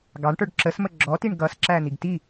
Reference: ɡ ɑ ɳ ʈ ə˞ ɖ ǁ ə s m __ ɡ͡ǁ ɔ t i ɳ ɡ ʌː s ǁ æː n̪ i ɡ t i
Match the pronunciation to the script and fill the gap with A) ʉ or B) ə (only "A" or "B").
B